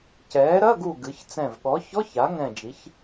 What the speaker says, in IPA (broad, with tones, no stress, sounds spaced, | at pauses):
c ɛː˩˥ ɾ ɐ˧˥˧ ɡ u˧˩ ɡ ɨ˩˥ ç t͡s ɛ̃˧˩ v ɠ ɔ˩˥ ç ɔ˧˥˧ ç a˩˥ ŋ ɛ̃˧˩ d͡ʒ i˩˥ ç